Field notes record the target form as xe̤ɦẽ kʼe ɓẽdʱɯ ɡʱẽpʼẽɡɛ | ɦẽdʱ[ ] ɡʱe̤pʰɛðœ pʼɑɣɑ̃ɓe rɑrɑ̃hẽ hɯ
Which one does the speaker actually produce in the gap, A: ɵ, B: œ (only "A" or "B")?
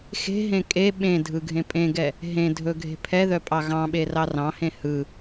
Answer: A